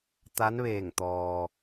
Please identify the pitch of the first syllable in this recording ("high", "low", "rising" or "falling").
rising